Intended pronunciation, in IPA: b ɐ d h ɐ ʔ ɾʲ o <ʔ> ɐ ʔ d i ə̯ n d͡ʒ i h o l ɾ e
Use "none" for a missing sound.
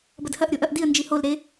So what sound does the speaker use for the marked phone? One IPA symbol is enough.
ʔ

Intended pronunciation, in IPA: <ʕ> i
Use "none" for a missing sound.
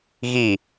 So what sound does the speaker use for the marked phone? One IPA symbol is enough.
ɣ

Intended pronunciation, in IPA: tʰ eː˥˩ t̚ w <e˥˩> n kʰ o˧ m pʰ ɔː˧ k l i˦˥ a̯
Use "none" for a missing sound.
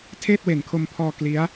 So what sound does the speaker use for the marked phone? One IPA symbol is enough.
e˨˩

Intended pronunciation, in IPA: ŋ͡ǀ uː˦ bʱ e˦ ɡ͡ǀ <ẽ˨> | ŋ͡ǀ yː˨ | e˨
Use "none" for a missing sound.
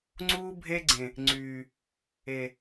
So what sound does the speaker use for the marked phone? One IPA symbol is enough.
ẽ˨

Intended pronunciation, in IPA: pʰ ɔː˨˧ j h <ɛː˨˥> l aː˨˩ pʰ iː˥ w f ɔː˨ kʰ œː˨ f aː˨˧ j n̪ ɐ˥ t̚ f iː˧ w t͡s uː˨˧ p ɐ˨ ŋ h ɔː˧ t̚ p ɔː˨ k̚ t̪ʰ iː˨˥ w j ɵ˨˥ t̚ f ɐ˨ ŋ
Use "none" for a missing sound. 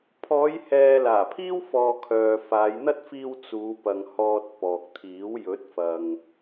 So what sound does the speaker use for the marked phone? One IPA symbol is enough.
ɛː˨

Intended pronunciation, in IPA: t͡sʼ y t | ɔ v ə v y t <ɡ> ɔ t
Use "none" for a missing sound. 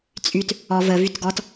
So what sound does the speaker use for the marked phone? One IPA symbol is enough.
ɡ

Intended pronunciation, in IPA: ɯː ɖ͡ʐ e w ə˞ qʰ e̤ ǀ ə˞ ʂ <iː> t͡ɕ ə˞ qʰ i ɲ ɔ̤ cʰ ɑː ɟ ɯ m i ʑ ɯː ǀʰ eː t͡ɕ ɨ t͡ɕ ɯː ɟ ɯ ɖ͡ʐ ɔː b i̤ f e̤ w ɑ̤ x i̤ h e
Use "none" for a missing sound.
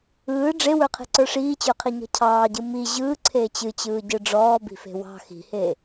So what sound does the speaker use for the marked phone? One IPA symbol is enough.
iː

